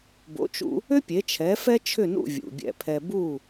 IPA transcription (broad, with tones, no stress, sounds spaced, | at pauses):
b o̰˩˥ t͡ʃ ṵ˧ | ʏ˥ pʲ e˩˥ t͡ʃʰ ɛ˩˥ f ɛ˥ t͡ʃʰ ʏ˥˩ n ṵ˥˩ vʲ ṵ˩ bʲ ɛ̰˧ pʰ ɛ˧ b u˥˩